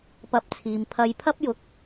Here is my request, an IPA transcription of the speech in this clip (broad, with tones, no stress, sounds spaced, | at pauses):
p ɐ˧ p̚ t͡sʰ iː˨ m pʰ ɐ˧ j pʰ ɐ˥ p̚ j ʊ˧ k̚